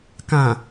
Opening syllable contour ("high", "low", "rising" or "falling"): low